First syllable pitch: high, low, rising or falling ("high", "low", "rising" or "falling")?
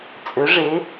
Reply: rising